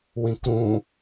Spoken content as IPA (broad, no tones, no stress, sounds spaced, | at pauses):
w ĩ k ɾ ũ